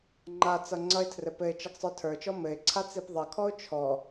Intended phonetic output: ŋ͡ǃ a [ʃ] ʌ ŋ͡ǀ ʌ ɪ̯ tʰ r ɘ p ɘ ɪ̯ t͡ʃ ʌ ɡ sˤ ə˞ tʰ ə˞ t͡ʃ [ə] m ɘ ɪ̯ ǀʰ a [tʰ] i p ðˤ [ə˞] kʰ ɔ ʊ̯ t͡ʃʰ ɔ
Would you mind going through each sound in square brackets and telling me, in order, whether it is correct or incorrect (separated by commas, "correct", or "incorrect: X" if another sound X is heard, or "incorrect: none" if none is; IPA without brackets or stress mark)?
incorrect: t͡s, incorrect: ɔ, incorrect: t͡s, incorrect: ʌ